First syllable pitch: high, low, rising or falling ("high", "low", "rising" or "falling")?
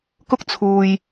high